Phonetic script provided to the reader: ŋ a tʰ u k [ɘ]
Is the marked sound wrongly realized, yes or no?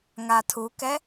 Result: yes